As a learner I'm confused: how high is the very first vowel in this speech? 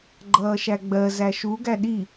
mid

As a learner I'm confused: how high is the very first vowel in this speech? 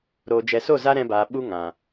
mid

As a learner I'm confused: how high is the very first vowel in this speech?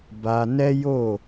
low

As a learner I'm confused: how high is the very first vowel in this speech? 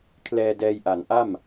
mid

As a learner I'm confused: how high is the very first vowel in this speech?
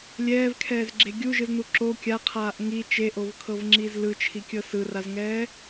mid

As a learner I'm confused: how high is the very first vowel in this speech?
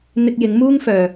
high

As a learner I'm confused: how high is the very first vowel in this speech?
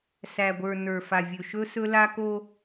low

